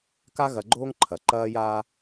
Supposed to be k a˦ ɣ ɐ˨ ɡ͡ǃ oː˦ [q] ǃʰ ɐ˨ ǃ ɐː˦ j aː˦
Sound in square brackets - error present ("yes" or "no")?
yes